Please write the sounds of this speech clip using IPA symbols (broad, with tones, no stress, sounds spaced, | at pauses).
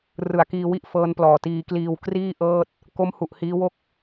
r ɯ˨˩ a̯ k iː˧ w i˥˩ ʔ f ɤː˦˥ n p l ɔː˨˩ t iː˧ k l iː˧ w k r iː˥˩ ʔ ɤː˥˩ t̚ | k o˦˥ m h u˨˩ ʔ h iː˦˥ w o˥˩ k̚